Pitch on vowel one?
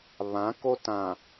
rising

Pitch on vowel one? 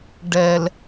low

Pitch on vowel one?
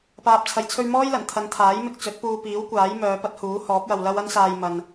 low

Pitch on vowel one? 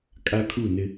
high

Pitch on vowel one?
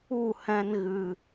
falling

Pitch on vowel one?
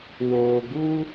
low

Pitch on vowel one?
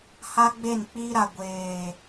high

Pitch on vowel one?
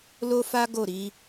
high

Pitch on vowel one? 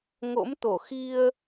rising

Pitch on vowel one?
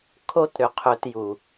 high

